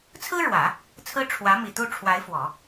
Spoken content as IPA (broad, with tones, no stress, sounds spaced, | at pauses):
t͡sʰ ɹ̩˥ ɻ w ä˨˩˦ | t͡sʰ ɹ̩˥ ʈ͡ʂʰ w ä˧˥ m i˨˩ t̪ u˥˩ ʈ͡ʂʰ w a˧˥ ɪ̯ f w ɔ˨˩˦